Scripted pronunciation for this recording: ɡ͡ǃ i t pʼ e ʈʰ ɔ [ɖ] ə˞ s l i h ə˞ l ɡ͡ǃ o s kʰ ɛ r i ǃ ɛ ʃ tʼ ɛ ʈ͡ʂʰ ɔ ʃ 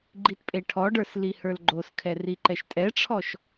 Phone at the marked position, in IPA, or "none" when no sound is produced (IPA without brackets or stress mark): ɖ